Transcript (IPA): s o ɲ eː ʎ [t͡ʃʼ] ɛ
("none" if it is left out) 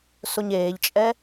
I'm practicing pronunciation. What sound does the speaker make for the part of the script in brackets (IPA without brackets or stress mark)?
t͡ʃʼ